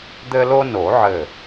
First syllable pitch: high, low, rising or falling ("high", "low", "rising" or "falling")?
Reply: high